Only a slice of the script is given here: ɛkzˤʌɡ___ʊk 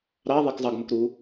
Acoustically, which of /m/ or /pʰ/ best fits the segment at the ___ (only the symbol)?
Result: m